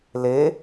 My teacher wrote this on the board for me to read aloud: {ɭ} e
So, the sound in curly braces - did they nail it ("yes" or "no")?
no